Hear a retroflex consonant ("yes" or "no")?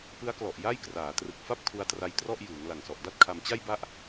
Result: no